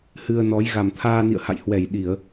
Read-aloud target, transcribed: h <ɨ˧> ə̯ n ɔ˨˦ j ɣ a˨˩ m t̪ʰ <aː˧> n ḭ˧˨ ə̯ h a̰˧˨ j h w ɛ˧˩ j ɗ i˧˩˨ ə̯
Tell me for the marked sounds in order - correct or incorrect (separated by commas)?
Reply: correct, correct